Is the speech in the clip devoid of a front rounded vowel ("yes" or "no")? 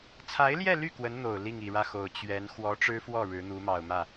no